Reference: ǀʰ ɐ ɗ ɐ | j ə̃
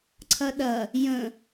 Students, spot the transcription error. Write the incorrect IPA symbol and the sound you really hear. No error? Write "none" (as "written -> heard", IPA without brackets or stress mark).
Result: none